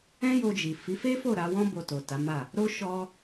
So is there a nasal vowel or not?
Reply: yes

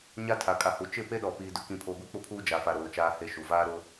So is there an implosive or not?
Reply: yes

